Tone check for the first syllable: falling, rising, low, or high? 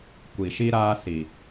low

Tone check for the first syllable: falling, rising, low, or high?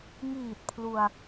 low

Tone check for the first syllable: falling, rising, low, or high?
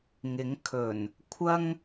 rising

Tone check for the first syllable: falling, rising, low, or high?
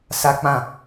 high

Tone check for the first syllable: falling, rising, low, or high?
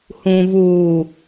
low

